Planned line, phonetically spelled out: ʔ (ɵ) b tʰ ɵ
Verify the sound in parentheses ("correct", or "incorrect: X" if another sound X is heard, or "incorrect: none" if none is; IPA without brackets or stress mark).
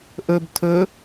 correct